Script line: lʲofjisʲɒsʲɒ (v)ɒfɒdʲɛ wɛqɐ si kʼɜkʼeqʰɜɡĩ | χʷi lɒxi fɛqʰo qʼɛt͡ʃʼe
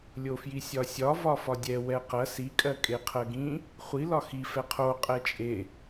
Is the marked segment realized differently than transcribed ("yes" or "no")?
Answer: no